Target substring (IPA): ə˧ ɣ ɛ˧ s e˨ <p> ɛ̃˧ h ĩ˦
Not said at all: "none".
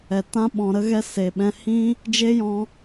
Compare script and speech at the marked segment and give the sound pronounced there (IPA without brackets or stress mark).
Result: ɓ